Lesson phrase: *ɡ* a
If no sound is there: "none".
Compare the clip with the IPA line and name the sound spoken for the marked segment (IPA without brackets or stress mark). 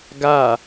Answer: ɡ